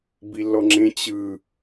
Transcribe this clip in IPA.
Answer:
bilːɔŋ͡ǁẽ t͡ɕɯ

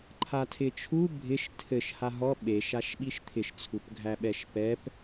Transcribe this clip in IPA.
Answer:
ǃʰatʰɪt͡ʃʰu bʱɪʃ tʰɘʃ haɦɔ ɓeʃaʃ ɓiʃt̪ʰɪʃt͡sʰup ɡʱæɓɛʃpɛp

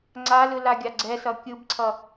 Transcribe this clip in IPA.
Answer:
ŋ͡ǀalɯ laɡʲaɡ͡ǀɛsʌ kʲɯbǀʰʌ

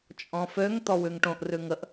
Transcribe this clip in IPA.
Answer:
t͡ʃʼɔ̃føŋ t̪ɔwʉŋʈõʔ rʉŋəʔ

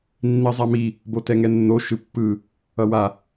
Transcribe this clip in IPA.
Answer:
nːizˤami | botɛŋɛnːo ʃɯpːɯ | ʌwa

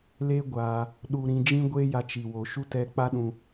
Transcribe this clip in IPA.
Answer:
le˦ɡʷaː˧ | ɗu˧ ɾĩ˧d͡ʒĩ˦ ɡʷeː˦ja˧t͡ʃi˨ wo˨ʃu˦ tɛ˦ k͡pa˦ɗũ˧

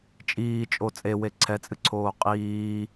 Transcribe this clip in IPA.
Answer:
t͡ʃʼiːt͡ʃʼo t͡sʼewe ǀʰɛt͡sʼɨǀʰoː qʼiː

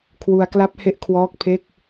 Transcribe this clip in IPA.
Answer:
kʰwu˧a̯kla˦˥p̚ he˦˥ʔkʰwɔː˦˥k̚pʰe˥˩k̚

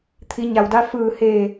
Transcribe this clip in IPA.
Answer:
t̪ʰi˩˧ɲa˩wda˧ fɯː˧˩heː˧˩

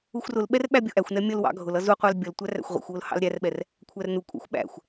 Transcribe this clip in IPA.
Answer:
uxʷrʊlɓɛr ɓæbʲʊʔæxʷnɛ mʲʌl wɑ̰ɡʱʊlʌ zuqʷɑl bʲʌl tʷæræ̰xʷʁʷɛ̰xʷwʊl hɑ̰lɾʲærɓɛr | kʷʰærnukʷʼæ̰xʷ ɓæ̰xʷ

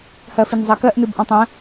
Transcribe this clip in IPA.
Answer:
hɜfinzˤɜkɜʔ nɨbʔɔ̃tˤə̃

